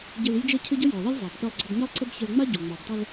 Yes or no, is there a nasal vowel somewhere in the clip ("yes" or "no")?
no